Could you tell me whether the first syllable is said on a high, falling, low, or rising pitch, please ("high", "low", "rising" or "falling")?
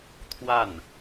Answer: falling